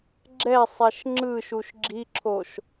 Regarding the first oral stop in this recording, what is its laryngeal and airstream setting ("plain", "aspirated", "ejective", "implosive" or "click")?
click